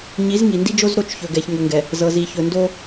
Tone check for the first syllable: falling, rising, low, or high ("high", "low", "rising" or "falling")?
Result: rising